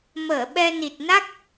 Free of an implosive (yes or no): no